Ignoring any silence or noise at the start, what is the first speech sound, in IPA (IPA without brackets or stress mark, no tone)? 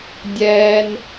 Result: dʲ